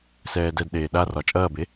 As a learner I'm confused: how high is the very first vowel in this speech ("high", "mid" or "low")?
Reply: mid